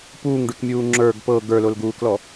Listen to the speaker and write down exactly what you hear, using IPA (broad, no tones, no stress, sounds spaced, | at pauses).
p uː ŋ ɖ ʉ k mʲ uː ŋ͡ǁ ə˞ ɡ p ɤ ɡ ə˞ l o l ɡ uː k l ɔ